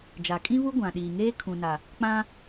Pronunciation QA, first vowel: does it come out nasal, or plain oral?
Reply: oral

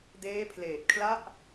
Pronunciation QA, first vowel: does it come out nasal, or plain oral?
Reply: oral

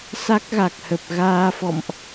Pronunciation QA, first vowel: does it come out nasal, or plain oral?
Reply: oral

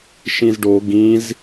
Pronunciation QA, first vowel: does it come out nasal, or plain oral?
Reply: nasal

